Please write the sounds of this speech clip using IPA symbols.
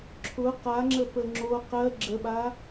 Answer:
ǁʰʊ qaŋ͡ǁə pəŋ͡ǁo qɜ ɡ͡ǁəɓa

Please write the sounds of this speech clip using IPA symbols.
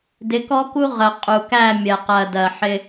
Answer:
dɪ˨˦kɔ˦ku˦ ʁə˨ qʼu˨kæ˦˨ mʲɜ˨qɜ˨dɜ˨ħɪ˦

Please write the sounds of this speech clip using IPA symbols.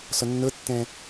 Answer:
sɔnːɤtːɛ̃

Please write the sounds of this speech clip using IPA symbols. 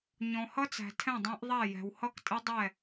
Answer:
ɲɔ̃˩hʌ˦˥t͡sæ̤˩ tʰɛ̃˥˩dˤæ̃˦˥ʔðˤæ˥˩ jɛ̤˩whʌ˦˥ktʼɪ˦˥ dˤɛ˥˩

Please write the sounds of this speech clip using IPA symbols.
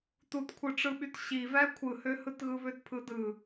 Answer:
tutkʷʰɯʈ͡ʂɯɓyt ɕivæ kʷʰɯhøhɯtɣɯ βøtpʰɯdɯ

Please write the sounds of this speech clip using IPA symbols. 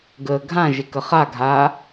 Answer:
ɡəːɡʱãʒɪ kəχaɡʱaː

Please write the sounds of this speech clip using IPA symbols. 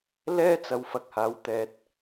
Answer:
lɛː˥t͡sɐ˨w fɐ˨k̚haː˨˥w t̪ɛː˨t̚

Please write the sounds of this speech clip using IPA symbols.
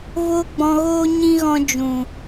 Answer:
voː˦ɡ͡bɔ̃˧ɣoː˦ ɲĩ˦ɣɔ̃˧ d͡ʒũ˨

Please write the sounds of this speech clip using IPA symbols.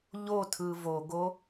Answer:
ʎotʰɯ voɡo

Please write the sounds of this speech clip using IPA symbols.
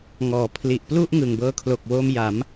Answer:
ŋɔː˨˩ pʰli˨˩ʔplu˥˩ʔ ŋɯ˨˩ŋbɤː˧kʰlo˨˩k̚woː˧m ja˩˦m

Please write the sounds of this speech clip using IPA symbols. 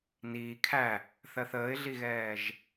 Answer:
niː kʰæ | θɜθəːɪ̯ɮiɣɛːʒ

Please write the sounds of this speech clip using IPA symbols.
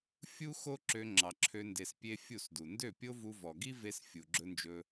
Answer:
fʲu˦ xo˦ǁø˧ ŋ͡ǁɑ˨ǁʰø˧ nde˧spʲe˦ fʲu˦˨sdu˨ ndø˦˨pʲo˦vu˧vɔ˨ ɡi˦ve˧s fʲu˨ɡ͡ǁɵ˦nd͡ʒɵ˦

